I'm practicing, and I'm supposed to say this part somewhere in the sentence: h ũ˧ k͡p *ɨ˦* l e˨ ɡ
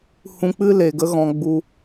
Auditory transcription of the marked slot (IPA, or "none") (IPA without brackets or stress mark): ɨ˦